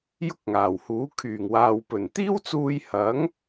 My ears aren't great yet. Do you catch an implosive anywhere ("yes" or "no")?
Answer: no